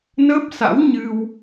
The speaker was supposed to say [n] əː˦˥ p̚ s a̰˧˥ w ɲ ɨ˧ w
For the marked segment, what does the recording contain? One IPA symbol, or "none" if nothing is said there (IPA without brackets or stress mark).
n